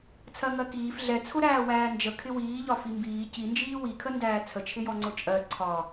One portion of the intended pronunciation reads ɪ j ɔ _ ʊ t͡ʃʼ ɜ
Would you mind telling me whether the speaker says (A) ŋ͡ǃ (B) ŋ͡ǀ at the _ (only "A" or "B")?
B